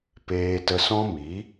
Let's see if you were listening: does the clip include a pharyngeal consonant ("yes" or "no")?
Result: no